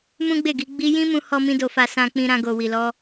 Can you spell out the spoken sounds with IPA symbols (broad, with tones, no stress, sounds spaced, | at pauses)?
m ũ˦ ɡ͡b e˦˨ ɡ i˧ ɡ͡b i˧ j ĩ˦ m ũ˧ h ɔ˦ m ĩ˦ d o˧ f a˧ s ã˧ k͡p ĩ˧ ɾ ã˧ ɡ o˨ w i˨ l ɔ˧